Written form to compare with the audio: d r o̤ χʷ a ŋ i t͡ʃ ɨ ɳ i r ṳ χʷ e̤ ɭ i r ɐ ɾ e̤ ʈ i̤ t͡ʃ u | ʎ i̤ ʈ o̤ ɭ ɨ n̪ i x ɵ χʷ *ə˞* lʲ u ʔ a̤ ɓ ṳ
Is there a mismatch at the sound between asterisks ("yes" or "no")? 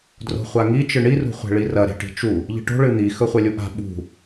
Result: yes